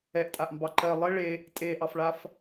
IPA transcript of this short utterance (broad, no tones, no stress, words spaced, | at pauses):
ɛʔtʼaʔmbɑ ǃɜ lˠɘ ɭe | tʼeʔɑfɭaf